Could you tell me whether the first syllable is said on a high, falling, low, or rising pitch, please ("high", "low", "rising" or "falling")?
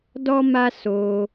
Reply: high